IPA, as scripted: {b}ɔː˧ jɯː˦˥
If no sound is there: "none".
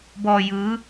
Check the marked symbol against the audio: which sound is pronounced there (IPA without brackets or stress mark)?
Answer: b